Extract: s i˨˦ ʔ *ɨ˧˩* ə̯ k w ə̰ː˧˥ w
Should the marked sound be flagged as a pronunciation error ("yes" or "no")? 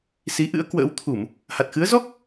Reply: yes